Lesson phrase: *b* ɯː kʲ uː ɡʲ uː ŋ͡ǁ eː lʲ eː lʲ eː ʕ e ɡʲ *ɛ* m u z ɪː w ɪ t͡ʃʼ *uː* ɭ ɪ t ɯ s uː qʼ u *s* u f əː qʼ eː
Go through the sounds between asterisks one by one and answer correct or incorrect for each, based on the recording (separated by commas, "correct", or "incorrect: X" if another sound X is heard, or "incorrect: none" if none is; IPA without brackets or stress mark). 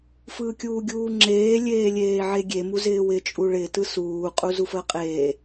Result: incorrect: f, incorrect: e, incorrect: u, incorrect: z